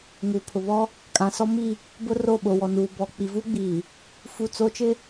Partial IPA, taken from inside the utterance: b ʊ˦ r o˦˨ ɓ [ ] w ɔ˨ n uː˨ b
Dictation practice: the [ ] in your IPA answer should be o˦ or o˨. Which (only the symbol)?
o˨